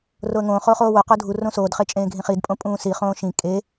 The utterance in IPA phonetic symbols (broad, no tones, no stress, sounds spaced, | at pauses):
r o ə̯ ŋ õː χ oː χ oː w o q o dʱ u r õ s oː d χ e t͡ʃʼ ẽː ɡʱ ĩ χ i d pʼ õ pʼ ũː s i χ õː ʃ ĩ kʼ e